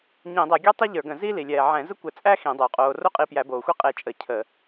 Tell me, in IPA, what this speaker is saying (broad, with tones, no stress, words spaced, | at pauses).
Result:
ɲĩ˧˩˧dˤɛ˧˩˧ɡʲæ˥tˤɛ˥ ʎə˞˧˩˧ɡə̃˧˩˧ziː˥li˨˩ lʲɛː˨˩ ʕɛ̃˧˩˧zə˥kʷɘ˧˩˧t͡sʼæ˥ xĩ˧˩˧dˤo˨˩qʼoː˧ ro˥ qʼi˧pjæ˧˩˧boː˨˩ xʷe˥ qʼe˧t͡ʃʼə˧˩˧ cʰə˧˩˧